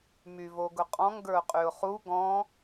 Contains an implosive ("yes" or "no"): no